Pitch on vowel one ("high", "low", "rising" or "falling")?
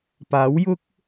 rising